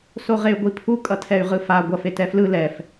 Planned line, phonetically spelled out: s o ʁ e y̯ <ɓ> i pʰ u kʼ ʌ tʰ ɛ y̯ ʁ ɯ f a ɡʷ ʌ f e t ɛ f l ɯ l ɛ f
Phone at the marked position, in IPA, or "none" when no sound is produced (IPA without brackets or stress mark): ɡʷ